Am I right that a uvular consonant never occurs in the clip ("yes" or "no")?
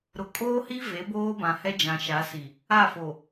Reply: yes